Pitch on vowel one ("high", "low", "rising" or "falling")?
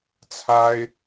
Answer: high